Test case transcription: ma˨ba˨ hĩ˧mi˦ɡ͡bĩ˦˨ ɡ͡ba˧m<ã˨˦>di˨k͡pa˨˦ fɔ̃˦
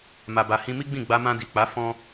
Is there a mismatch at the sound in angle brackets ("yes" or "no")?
yes